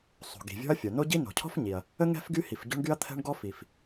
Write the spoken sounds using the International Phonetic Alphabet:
sˤ o̤˩ ɡ i̤˩ vʲ ɔ̤˥ ɐ̯ fʲ o˩ n o˥ ɟ i˥ n o̤˩ cʰ ɔ̤˥ f ɲ i˩ ɐ̯ | ə˥ ŋ ɛ̤˥ f ɡ y˥ h i˩ f ɟ o̤˥ ɳ ɡ y˥ ɐ̯ t̪ʰ ɛ̤˥ ɳ ɡ ɔ˥ f i˩ f

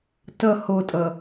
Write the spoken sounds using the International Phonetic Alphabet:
t ʌ h o tʼ ʌ

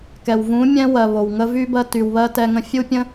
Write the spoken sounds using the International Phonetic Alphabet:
k ɛ˨ w v ũː˨˦ mʲ ɛ̃˧ w ɜ˨ β o˨ w ŋ ə˧ v y˦ b ɜ˧ t y˨ w β ɜ˧ t ɛ˧ ŋ ə̃˧ fʲ u˦ pʲ ə̃˦

